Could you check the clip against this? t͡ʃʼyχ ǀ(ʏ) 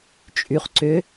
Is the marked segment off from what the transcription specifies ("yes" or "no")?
no